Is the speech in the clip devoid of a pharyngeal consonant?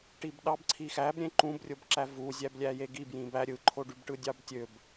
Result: yes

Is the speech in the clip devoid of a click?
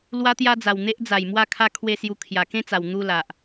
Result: yes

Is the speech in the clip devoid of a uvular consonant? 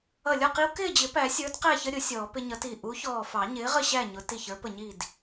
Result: no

